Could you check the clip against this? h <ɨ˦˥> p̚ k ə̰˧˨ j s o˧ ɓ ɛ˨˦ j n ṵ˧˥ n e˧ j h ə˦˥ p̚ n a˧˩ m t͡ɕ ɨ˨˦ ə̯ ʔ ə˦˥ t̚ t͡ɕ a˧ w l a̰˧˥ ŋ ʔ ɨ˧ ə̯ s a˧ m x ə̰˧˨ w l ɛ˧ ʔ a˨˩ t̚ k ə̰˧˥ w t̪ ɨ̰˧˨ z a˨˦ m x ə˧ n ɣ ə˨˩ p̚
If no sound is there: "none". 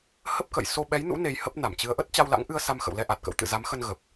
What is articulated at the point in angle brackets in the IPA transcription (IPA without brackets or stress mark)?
ə˦˥